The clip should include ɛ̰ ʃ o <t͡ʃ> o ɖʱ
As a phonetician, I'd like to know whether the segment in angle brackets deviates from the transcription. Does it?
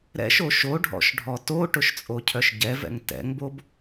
yes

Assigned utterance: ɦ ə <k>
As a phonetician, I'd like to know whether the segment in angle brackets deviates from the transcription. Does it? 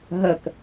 no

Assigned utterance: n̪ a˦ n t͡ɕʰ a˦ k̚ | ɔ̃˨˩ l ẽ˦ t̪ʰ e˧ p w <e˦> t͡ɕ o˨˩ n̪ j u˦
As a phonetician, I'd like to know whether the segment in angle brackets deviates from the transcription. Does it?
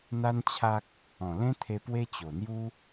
no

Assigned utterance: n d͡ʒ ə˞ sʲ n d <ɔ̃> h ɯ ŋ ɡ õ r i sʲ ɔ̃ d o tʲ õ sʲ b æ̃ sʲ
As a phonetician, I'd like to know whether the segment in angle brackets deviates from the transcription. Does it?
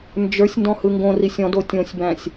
no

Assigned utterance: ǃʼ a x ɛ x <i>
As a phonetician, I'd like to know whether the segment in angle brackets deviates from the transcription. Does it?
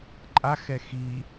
no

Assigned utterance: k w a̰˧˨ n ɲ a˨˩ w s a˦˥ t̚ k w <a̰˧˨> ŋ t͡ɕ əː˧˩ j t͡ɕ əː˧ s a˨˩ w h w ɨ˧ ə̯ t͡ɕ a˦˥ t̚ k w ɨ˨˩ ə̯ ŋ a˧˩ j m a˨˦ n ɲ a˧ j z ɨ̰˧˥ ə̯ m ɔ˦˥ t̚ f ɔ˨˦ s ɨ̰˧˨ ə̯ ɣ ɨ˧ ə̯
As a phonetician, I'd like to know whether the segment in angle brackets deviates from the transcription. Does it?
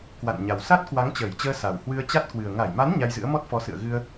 yes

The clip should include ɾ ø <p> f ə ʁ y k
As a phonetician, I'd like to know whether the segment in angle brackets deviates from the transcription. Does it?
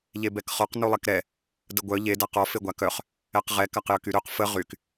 yes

